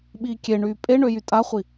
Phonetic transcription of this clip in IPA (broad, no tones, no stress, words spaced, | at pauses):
ɓiːkʲeɳyː pʼe ɳøjytʼaχʷi